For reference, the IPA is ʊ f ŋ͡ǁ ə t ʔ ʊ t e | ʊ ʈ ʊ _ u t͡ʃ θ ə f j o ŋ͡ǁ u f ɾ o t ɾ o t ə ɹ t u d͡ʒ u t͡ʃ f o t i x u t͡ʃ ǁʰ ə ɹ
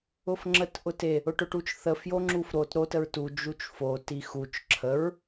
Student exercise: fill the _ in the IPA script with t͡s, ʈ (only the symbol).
ʈ